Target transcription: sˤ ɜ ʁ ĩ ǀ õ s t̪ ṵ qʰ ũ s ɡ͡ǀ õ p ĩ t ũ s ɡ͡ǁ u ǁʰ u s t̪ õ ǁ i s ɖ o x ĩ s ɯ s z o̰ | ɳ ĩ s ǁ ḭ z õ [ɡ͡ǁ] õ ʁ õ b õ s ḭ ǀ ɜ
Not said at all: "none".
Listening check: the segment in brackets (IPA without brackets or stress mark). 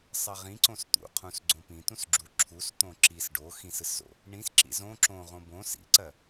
ǁ